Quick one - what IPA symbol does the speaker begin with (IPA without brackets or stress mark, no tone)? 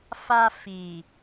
f